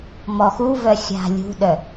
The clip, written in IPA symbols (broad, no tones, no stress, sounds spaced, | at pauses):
m ɔ x u v œ xʲ a̤ lʲ ṳ ɗ œ